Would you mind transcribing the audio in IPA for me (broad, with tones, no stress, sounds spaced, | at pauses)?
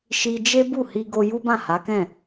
ʃ i˧ d͡ʒ e˦ b u˦˨ h i˧ ɡ o˧ j u˦ b ã˦˨ h a˨˦ k ɛ̃˦˨